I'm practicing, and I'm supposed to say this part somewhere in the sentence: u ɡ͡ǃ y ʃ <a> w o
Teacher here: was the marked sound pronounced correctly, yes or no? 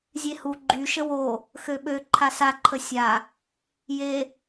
no